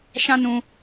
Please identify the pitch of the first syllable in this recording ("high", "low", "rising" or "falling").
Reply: high